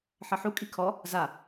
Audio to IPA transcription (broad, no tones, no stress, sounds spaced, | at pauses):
ħ ʌ ħ u kʼ i kʰ ɔ | z a